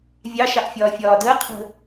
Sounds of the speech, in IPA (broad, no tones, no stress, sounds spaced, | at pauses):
vʲ ɑ ʃ ɑ ʔ fʲ ɒː fʲ ɒː d əː qʰ ə̤